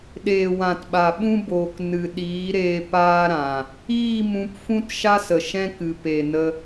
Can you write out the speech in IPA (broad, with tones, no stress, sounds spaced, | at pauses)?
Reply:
ɗ eː˨ w ã˨ t ɓ a˨ ɓ ũ˦ b oː˨ k n ɨ˨ ɗ iː˨˦ ɾ eː˧ p aː˦ ɾ ã˨ | iː˦˨ m ũ˧ p f ũ˦ t ʃ a˦ s ə˨ ʃ ɛ̃˦ k ɨ˨ p e˨ n ə˧